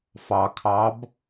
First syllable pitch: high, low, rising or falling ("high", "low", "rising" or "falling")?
low